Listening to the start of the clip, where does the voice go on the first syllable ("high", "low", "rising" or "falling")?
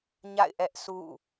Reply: falling